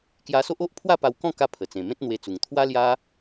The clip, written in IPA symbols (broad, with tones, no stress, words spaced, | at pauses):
kja˧so˦ʔo˦ʔ pʰwa˥˧pa˧wkɔ̃˥˧ ka˦pʰə˨˩ t͡sẽ˨˩mẽ˦t̚n̪we˧t͡su˨˩ŋ t̪ʰwa˦lja˦